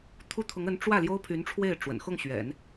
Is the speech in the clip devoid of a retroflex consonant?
no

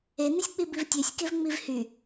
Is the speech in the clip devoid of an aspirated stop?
yes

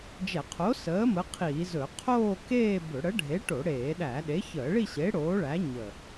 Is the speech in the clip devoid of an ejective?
yes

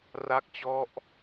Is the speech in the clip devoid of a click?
yes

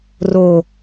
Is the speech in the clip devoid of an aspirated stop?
yes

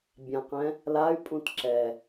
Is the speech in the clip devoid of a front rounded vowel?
no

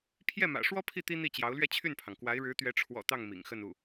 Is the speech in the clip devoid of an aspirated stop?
no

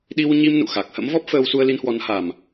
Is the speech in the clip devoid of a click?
yes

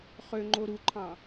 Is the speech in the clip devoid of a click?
no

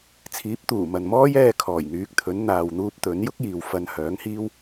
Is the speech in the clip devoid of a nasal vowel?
yes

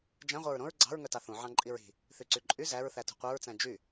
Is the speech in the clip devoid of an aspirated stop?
yes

